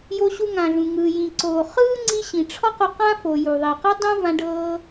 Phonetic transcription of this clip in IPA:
j o˧ ɕ u˧ ŋ ã˩ ɮ ũ˩ ŋ ɯː˩ j ĩ˩ ǀ oː˩ χ ɯː˥ ŋ͡ǀ i˧ ɕ ĩ˩ ʈ͡ʂʰ ɔ˥ q o˧ q ã˥ f o˩ j u˩ ðˤ i˩ q ɤ˥ dˤ ũ˥ v ã˧ ɖ ɤː˧

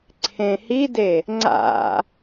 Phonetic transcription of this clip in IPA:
ǀʰ ẽ h i d e | ŋ͡ǀ a̰

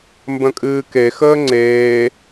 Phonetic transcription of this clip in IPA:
m b ə̃ kʼ ɨː k e x əː ŋ͡ǀ eː

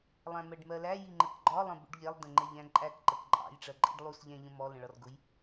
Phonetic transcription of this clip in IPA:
lˠ æ̃ m ɜ ɖ m ɜ l æ j i ŋ͡ǃ ə k ɡ͡ǃ ɒ lˠ ə̃ b ṵ ɖ ʎ ɛ lˠ d ə̃ ŋ͡ǃ ɛ ʎ æ̃ ǃʼ æ k ǃ ə k ǃʼ ɑ̰ j ʈ͡ʂ ɜ ǃʼ i ɖ lˠ u s ʎ æ̃ ʎ ə̃ m ɔ l ə̃ ɭ ɒ r ɡ ʊ j

